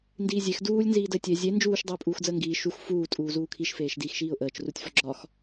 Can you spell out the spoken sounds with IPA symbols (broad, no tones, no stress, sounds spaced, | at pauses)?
n d iː zʲ e x d uː lʲ n z iː d ə ɪ̯ tʲ e zʲ e n d͡ʒ uː ʃ dˤ əː pʼ uː x d͡z əː ŋ ɡ iː ʃ u x f uː tʼ uː z uː kʰ i ʃ f eː ʃ d iː x ʃ iː ʊ̯ ʔ əː t͡ʃ r u tʲ f ɒ ɡ͡ǁ ɒ x